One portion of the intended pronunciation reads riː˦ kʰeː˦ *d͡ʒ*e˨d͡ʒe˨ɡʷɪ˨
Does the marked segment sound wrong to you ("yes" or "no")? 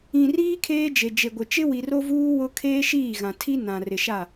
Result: no